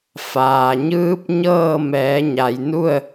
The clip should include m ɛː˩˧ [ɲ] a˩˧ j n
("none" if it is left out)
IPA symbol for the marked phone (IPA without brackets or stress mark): ɲ